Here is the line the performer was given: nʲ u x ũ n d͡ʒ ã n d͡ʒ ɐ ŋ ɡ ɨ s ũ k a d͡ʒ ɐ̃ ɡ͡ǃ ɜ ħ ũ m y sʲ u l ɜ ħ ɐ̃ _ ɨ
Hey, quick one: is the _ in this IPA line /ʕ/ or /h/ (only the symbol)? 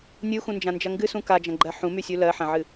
ʕ